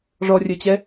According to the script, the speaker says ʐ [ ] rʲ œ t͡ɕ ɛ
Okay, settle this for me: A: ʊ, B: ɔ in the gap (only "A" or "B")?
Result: B